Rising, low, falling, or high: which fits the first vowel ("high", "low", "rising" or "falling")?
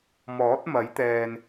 rising